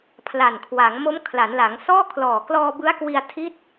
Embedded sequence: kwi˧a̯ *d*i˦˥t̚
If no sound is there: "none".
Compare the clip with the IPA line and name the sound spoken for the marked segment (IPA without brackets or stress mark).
tʰ